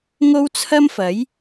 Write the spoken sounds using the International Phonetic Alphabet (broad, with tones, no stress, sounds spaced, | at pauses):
ŋ o˥ w t͡sʰ ɐ˥ m f ɐ˨˥ j